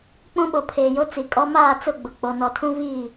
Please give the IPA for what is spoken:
k͡pũ˦ɓo˨pʰeː˨jo˦ t͡si˨kʼɔ˦ maː˦˨t͡sʊ˦˨ɡ͡bʊ˨ k͡po˨nɔ˨tʰũ˦ viː˦˨

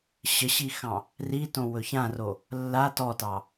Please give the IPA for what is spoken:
ɕəɕixɑ̃ | ritõ wɵçãro | lːa tɔtɑ

